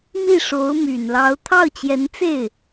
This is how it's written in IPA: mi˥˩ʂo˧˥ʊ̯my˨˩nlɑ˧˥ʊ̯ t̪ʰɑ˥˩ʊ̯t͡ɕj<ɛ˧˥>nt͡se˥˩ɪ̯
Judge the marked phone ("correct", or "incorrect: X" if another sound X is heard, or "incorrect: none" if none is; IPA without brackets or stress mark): correct